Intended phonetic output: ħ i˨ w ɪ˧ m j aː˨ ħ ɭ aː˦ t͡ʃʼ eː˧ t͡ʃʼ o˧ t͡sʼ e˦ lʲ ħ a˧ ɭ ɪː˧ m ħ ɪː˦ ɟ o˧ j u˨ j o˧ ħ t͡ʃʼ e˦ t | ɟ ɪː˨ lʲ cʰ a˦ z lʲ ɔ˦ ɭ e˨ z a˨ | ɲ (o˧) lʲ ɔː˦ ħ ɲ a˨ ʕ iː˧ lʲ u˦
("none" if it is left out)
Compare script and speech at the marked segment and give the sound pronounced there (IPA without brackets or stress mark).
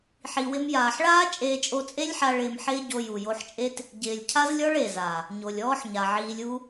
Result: o˨